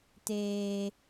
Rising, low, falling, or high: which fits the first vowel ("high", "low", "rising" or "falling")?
high